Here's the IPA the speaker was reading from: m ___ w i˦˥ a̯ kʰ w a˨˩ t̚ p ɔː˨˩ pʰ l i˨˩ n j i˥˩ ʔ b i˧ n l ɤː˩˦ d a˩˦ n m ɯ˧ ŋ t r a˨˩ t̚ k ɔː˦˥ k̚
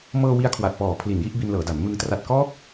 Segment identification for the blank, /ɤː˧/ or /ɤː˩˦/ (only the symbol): ɤː˧